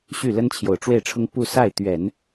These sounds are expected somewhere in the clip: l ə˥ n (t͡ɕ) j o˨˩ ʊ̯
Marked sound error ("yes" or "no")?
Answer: yes